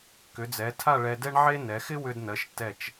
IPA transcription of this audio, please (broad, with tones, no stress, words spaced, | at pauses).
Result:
kʏ˩˧d͡zɛ˩˧ tʰa˥˧ɭɛ˧dɛ˥ɳʕe˥ nɛ˩˧xɪ˥wʏ˧dnɜ˩˧ʃ tɛ˧˩t͡ʃ